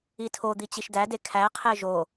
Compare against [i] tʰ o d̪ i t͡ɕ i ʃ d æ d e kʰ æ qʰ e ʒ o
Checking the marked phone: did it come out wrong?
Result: no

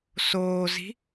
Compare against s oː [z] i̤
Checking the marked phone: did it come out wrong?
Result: no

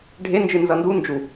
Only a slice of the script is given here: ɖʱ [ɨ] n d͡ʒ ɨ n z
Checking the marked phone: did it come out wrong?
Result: yes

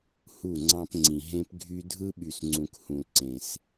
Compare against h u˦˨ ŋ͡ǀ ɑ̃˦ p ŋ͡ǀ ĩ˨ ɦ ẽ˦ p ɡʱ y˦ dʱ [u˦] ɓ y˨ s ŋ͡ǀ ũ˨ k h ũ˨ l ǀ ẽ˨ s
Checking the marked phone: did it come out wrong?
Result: yes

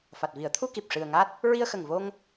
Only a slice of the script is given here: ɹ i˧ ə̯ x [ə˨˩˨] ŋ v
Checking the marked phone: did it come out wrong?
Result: yes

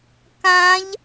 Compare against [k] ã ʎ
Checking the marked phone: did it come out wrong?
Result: no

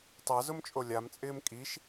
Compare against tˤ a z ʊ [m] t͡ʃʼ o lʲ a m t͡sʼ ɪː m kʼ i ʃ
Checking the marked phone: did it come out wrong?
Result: no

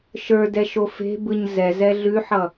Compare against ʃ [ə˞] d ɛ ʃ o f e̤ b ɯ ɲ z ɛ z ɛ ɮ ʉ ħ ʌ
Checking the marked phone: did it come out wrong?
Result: no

